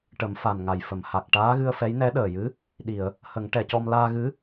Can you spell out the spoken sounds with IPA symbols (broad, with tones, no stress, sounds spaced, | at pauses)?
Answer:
ʈ ə˨˩˦ m f a˨˩ n ŋ a˨˩ j f ə˨˩˨ m h a˨˩ k̚ ʈ aː˧˥ ɣ ɨ˧ ə̯ f ɛ˧˥ j n ɛ˧˥ ɗ əː˨˩ j ɨ˧˥ | ɗ i˨˩˨ ə̯ | h ə˨˩˦ ŋ ʈ ɛ˨˩˨ c ɔ˧ m l aː˧ ɣ ɨ˧˥